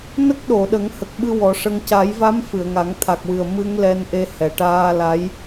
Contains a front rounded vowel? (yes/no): no